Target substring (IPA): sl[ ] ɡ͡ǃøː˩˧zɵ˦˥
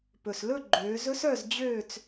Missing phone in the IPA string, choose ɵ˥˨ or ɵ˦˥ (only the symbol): ɵ˥˨